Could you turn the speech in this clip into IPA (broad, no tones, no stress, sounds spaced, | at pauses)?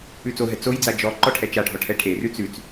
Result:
ʉ t͡s o ɦ ɛ t͡s o j d͡z a d͡ʒ ɔ ǃ ɔ ʈʰ ɛ t͡ʃ a ɖʱ ɔ ʈʰ ɛ ʈʰ e r ʉ t͡s ʉ t͡s